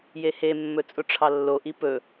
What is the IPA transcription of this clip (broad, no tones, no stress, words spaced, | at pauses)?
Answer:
jehemːɵ t͡sʼʊʈ͡ʂʰɑlːoʔi pɵ